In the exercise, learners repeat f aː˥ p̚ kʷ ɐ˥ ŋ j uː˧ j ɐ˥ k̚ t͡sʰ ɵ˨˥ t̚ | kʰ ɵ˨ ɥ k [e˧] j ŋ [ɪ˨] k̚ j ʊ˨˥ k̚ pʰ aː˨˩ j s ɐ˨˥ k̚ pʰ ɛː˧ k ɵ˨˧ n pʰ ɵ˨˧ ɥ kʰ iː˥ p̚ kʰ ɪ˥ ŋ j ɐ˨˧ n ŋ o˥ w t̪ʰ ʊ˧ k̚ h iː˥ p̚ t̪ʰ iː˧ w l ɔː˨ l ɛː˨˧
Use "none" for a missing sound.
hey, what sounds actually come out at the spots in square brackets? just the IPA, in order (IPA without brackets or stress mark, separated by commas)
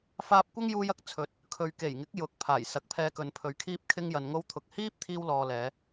e˨˩, ɪ˨˥